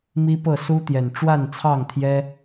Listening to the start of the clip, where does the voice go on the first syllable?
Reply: high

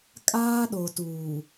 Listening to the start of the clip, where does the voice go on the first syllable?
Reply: high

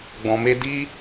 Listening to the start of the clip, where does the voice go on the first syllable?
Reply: low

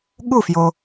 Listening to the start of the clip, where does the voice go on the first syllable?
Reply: falling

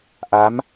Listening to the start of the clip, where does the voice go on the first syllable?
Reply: rising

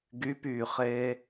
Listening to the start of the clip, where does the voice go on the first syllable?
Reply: rising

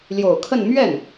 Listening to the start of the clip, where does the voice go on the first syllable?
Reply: low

